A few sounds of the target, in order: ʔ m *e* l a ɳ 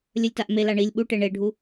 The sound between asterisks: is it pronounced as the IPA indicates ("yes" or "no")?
yes